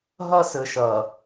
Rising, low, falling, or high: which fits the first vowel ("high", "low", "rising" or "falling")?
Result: high